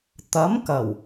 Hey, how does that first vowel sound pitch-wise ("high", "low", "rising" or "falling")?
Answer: rising